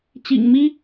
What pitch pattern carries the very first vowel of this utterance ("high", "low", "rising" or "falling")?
low